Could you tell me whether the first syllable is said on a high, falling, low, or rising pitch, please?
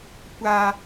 high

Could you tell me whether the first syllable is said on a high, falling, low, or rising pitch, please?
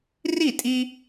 falling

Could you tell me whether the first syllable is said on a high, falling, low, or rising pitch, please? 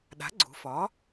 rising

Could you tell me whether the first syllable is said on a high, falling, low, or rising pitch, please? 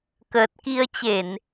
low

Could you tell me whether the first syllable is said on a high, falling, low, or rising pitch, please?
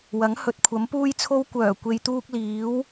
rising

